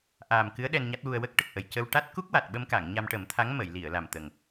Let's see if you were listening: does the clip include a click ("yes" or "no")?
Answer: no